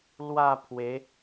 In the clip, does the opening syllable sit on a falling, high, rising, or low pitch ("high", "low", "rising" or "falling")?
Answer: falling